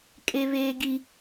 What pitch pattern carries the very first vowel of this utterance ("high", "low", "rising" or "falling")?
high